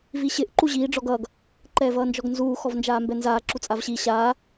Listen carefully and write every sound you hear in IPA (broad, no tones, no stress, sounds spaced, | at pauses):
v i ɕ ɪ ʔ ǃ u ʑ iː ɖ͡ʐ ɔ ɡ ʌː ɡ | ǃ ɛː v ʌː n d͡ʒ ɔ ɡ n z uː x ɔ v n d͡ʒ aː m b ɛ n z aː ǁ u t͡sʼ a v ɕ i ɕ aː